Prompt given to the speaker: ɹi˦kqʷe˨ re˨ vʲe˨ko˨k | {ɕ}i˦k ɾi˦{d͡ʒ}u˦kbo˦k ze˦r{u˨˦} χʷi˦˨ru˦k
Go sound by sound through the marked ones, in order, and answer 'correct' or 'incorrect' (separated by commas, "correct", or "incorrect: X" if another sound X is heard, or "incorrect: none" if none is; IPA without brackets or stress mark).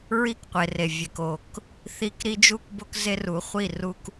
incorrect: θ, correct, correct